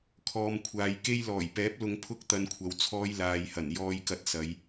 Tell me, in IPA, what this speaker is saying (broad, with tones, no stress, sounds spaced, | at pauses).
kʰ ɔː˨ m kʷʰ aː˨ j k e˧ j l ɔː˨˩ j p ɛː˨˥ p̚ l ʊ˧ ŋ pʰ ʊ˥ k̚ t̪ ɐ˨˧ n kʷʰ ɐ˨ w t͡sʰ ɔː˧ j l aː˨ j h ɐ˨˩ n j ɔː˧ j k ɐ˧ t̚ s ɐ˨˧ j